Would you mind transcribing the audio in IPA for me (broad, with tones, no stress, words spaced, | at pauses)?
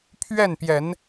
pʰɥɛ˥˨npjɛ˨˦n